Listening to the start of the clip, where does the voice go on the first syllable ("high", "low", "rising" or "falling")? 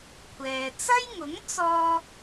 low